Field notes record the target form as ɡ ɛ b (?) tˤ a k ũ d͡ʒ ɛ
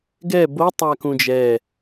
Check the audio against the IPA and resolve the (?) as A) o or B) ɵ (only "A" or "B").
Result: A